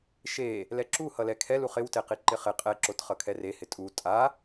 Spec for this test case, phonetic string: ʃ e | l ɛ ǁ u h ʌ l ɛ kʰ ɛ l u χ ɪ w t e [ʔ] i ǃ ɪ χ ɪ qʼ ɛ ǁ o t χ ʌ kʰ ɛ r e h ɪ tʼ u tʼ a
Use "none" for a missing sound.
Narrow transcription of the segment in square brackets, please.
q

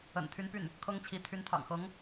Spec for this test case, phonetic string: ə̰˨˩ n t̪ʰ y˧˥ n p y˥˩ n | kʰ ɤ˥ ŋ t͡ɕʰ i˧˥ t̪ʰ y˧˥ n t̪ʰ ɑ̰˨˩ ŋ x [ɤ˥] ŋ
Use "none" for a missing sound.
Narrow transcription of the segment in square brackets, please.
ɤ˧˥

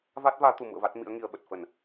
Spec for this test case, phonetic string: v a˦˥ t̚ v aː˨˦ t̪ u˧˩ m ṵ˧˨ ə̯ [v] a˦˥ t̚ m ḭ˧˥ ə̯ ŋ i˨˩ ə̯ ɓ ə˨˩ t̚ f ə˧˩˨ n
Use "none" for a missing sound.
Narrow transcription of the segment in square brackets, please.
v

